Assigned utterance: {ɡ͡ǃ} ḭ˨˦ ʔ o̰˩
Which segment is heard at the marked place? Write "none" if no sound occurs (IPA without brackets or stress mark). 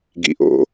ɡ